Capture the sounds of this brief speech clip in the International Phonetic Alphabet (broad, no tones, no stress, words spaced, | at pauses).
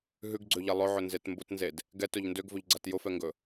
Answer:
ɦʉɡɡ͡ǀøʎe lˠɵʕɵnzet mbʊtnzed | ɡɛtɵʎ ndøɡvɵʎɡ͡ǀat jʊfɛŋɡɵ